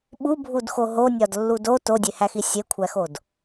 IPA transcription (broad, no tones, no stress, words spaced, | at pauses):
ɓubʱudxo ɦonʲɒdlːu do todʲehæxi sʲekʷʰæxod